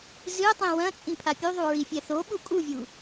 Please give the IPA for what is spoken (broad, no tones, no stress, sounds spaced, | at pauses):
z ɨ tˤ ĩ w ɐ̃ t͡sʼ ĩ pʰ a pʲ u ðˤ u ɹ i fʲ ɛ θ o ɓ u kʼ u vʲ u